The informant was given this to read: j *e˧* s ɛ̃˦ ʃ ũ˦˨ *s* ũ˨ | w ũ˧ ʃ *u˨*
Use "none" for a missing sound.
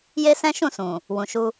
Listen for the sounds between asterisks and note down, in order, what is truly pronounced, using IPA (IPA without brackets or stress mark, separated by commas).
e˦, s, u˦